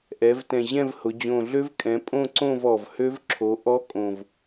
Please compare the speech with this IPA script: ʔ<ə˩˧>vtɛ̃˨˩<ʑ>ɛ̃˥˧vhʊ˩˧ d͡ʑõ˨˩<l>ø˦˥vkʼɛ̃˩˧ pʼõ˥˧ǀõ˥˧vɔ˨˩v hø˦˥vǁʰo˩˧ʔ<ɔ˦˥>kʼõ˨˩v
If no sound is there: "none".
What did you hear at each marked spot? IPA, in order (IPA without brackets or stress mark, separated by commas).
ɛ˩˧, ʑ, ɮ, ɔ˦˥